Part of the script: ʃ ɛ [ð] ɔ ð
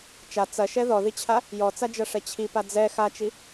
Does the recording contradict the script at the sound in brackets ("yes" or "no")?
no